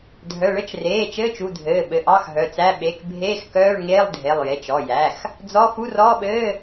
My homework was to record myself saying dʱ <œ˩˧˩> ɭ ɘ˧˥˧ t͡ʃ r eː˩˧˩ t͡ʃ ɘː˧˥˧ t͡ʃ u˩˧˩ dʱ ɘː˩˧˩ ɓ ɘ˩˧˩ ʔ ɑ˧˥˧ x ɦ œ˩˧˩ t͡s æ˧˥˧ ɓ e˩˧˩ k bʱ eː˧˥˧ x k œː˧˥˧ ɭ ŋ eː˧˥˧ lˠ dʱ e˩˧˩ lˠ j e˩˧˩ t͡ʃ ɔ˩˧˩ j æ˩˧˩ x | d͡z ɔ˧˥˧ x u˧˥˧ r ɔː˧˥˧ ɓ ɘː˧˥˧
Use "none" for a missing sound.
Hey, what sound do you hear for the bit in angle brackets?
œ˩˧˩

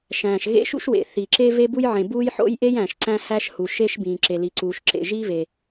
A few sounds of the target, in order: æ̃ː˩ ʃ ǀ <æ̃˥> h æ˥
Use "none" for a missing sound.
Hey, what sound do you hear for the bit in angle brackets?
æ̃˥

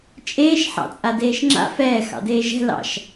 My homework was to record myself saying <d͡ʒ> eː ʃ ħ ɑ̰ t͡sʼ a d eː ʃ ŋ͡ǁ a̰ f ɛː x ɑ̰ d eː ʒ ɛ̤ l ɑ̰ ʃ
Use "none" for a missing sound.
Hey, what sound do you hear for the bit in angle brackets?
t͡ʃʼ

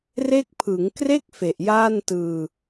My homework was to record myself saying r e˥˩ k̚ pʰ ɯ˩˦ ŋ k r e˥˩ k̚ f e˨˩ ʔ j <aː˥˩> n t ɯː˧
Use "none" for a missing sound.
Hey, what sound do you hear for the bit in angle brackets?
aː˥˩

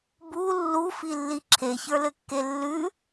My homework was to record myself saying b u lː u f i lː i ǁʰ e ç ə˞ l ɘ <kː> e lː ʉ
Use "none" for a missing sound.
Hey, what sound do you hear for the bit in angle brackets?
kː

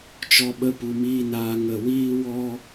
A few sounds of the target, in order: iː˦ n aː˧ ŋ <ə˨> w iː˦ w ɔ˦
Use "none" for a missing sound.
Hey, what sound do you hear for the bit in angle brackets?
ə˦˨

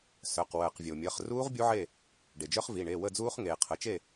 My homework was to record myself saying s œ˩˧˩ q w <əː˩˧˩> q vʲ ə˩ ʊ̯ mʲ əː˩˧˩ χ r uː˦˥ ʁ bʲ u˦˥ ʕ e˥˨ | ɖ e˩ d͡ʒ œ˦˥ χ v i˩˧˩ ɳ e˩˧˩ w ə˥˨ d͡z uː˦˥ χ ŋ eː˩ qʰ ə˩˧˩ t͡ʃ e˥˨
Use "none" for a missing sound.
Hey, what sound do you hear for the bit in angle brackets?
əː˩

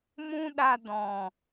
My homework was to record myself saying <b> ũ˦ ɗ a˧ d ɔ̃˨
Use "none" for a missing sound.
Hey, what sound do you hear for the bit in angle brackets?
m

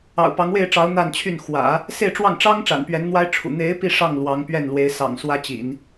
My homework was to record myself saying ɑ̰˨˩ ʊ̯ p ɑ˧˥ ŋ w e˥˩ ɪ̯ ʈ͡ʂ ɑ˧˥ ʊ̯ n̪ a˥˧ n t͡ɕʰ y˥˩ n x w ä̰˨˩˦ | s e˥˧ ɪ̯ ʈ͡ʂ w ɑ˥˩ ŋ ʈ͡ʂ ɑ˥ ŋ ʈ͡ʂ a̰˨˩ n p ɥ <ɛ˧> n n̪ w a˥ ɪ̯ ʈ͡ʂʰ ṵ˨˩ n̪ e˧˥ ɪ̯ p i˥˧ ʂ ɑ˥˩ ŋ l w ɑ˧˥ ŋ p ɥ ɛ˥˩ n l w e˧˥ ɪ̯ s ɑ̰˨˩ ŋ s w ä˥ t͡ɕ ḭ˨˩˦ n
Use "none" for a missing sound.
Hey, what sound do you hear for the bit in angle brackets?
ɛ˧˥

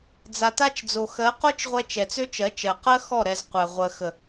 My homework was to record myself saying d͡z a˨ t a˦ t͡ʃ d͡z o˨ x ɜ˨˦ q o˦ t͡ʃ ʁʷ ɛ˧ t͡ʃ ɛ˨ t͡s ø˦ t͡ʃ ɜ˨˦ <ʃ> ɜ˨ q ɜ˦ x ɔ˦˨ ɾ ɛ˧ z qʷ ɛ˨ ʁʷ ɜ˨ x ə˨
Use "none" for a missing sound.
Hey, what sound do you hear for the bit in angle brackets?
t͡ʃ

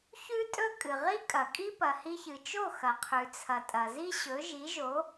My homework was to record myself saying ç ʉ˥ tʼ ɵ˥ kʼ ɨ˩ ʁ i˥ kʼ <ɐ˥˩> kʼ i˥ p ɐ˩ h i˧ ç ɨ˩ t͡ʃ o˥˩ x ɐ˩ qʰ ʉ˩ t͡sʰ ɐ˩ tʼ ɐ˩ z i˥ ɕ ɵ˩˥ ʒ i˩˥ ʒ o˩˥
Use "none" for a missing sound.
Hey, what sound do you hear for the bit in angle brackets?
ɐ˩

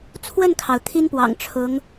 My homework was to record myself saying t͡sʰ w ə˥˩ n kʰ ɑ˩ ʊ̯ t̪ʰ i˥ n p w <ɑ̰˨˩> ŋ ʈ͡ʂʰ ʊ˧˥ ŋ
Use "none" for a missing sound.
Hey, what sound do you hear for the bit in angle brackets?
ɑ̰˨˩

